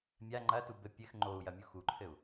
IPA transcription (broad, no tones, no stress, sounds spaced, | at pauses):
mʲ a ŋ͡ǃ ɐ t u b ɘ pʲ ɘ x ŋ͡ǃ o u̯ j ɐ mʲ u x u ǃʰ ɘ u̯